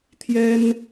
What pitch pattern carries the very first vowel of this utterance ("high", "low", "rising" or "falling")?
high